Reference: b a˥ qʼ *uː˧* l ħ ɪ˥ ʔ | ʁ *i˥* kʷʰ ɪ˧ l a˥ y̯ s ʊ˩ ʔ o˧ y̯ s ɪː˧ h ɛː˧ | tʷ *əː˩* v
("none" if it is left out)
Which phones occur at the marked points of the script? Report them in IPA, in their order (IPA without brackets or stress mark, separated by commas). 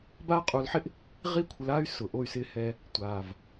uː˧, i˥, aː˩